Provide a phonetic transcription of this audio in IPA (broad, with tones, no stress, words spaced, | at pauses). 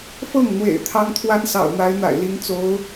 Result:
fɤ˥˩ŋn̪wḛ˨˩ɪ̯ t̪ʰɑ˥ŋt̪ʰwa˥nsɑ̰˨˩ʊ̯ n̪a˧˥ɪ̯n̪a̰˨˩ɪ̯li˧˥ŋ t͡so˧˥ʊ̯